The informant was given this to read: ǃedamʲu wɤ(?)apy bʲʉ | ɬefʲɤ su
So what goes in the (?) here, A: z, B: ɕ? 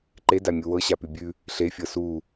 B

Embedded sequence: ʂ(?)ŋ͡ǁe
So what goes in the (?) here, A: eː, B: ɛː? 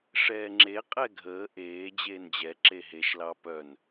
B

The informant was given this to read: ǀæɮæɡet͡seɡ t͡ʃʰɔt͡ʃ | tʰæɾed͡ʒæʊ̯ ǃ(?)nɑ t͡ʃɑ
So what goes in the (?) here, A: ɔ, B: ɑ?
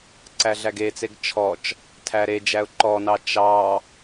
A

